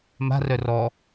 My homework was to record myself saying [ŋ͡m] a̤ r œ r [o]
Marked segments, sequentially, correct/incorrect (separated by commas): incorrect, incorrect